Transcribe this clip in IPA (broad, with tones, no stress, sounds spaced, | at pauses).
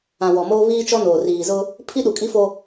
ã˨ w ɔ˨ m oː˦ β iː˦ t͡ʃ ɔ˦ n oː˨ r iː˨ z ʊ˦ | pʰ i˦ ɗ u˨ kʼ i˦ f o˦